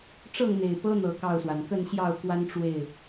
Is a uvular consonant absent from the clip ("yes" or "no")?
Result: yes